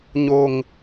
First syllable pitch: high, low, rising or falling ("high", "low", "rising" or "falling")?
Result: low